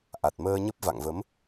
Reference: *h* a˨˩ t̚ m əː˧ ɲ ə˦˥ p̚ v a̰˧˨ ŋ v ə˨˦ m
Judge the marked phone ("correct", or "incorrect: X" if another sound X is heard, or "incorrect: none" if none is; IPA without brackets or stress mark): incorrect: ʔ